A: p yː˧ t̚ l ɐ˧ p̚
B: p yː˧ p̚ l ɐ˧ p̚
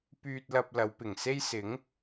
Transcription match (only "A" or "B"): A